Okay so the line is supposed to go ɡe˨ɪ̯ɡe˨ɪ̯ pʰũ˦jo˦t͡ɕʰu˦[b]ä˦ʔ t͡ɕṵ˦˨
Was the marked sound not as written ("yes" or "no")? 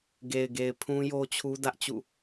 yes